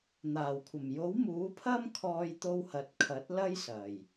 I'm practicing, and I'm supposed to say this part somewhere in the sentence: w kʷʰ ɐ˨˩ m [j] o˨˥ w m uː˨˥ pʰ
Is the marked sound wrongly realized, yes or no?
no